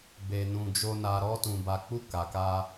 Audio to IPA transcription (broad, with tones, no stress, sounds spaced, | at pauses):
b e˨ n ũ˨ d͡ʒ o˨ n a˨ ɾ ɔ˧ t ũ˨ b a˨ k͡p u˧ k a˨ k a˧